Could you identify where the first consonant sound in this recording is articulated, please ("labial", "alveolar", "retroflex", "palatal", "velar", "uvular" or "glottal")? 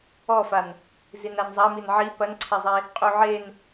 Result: labial